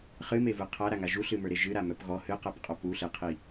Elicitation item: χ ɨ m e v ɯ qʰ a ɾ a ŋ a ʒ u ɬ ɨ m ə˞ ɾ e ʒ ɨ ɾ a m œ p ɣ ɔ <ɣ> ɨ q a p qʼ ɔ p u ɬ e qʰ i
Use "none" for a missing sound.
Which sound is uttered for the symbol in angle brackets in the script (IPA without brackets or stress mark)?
h